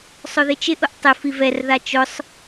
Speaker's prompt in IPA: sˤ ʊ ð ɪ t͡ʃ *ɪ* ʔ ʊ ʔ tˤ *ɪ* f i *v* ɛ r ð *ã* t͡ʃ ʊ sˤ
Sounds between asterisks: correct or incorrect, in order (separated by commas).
correct, correct, correct, incorrect